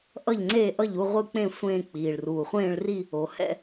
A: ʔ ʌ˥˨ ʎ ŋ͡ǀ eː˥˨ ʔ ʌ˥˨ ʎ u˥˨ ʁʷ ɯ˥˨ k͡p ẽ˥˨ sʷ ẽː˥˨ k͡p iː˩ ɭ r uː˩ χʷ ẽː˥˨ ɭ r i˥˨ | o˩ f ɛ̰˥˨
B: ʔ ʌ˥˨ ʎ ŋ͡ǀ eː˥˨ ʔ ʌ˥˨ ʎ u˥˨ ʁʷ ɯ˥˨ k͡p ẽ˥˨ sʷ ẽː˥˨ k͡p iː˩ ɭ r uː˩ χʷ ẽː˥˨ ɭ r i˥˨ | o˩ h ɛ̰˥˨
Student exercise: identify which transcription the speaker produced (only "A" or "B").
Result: B